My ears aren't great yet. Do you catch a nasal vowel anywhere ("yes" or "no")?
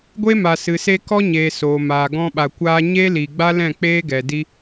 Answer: yes